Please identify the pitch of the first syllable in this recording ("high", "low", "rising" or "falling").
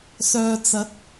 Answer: low